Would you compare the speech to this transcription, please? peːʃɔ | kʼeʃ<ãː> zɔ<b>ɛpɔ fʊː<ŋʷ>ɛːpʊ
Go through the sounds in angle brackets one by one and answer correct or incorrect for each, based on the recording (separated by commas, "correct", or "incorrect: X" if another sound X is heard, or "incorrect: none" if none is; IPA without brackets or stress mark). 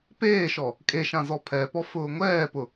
incorrect: ã, incorrect: pʰ, correct